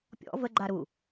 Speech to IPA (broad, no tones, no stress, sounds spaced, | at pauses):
pʲ ɔ̰ v ə ɡ͡ǃ a ɾ u